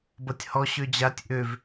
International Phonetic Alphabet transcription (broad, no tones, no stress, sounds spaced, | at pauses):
b ʌ tʲ h ɔ ɕ ø d͡ʑ a tʲ ʔ ø v